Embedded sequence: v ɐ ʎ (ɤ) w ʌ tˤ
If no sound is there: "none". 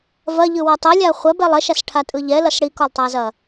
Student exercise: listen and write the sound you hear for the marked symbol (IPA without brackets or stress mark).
ɯ